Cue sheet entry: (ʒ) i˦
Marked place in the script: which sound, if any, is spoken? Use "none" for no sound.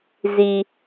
z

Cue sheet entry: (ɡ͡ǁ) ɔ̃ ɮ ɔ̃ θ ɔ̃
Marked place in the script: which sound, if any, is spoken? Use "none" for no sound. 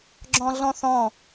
ɡ͡ǁ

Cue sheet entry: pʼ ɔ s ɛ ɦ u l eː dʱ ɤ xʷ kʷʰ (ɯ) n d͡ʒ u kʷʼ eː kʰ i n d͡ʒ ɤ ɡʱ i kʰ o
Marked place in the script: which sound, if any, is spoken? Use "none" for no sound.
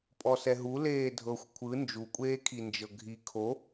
ɯ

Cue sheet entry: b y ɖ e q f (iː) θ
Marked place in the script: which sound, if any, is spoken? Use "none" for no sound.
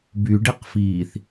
iː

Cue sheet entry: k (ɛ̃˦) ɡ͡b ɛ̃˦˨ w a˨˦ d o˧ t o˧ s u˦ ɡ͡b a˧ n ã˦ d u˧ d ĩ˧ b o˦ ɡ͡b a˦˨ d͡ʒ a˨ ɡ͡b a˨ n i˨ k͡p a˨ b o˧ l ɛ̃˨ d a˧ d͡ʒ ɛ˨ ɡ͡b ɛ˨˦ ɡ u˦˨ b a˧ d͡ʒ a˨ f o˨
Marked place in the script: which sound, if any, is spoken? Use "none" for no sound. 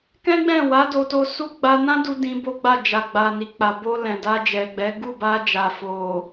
ɛ̃˦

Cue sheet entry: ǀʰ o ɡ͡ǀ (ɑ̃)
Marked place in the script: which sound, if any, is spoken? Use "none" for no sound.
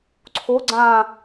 ã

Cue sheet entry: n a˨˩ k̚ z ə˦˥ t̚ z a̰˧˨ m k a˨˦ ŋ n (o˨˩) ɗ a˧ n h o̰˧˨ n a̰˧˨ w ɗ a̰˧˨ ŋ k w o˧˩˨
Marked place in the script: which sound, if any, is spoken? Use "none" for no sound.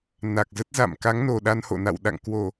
o˨˩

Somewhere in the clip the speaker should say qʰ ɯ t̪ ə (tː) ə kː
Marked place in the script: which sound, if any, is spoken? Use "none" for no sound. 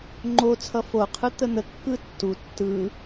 n̪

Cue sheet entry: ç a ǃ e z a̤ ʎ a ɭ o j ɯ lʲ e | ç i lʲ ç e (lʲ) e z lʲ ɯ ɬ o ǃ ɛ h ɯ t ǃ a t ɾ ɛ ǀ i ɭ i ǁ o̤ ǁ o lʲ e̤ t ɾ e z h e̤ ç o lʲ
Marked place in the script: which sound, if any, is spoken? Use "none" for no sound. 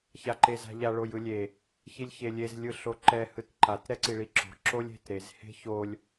lʲ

